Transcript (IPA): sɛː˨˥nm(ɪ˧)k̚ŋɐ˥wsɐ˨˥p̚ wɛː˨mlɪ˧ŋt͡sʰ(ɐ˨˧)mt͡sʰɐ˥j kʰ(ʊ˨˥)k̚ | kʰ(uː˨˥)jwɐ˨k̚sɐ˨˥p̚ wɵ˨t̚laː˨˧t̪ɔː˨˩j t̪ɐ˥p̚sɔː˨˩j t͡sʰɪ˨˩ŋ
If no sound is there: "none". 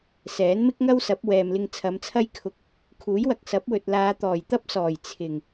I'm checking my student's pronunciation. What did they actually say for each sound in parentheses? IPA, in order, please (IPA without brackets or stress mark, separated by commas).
ɪ˥, ɐ˨˧, ʊ˧, uː˨˥